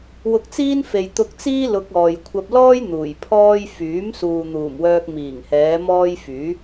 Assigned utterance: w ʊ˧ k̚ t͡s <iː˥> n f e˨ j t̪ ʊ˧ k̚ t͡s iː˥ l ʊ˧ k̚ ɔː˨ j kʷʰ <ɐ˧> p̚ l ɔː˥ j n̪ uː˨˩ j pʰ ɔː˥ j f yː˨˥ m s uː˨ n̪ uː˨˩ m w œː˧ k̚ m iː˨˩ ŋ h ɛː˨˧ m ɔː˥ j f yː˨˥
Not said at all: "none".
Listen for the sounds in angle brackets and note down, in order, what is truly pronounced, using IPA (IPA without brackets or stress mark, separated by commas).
iː˥, ɐ˧